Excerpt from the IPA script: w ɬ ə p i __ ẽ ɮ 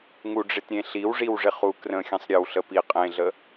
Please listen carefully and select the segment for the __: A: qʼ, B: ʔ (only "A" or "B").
A